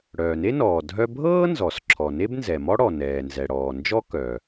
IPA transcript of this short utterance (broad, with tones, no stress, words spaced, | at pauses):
ɽœː˩ne˥nɔː˩ dʱœ˥ bʱɤː˥nzɔ˩s ǁʰɔ˩ne˥bnzɛ˩mɔ˥ ɽɔ˩nɛː˩nzɛ˩ɽɔː˩ nd͡ʒɔ˥kœ˩